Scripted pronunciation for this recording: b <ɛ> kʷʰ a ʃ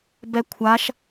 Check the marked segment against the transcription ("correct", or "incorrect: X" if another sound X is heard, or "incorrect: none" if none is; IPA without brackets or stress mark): correct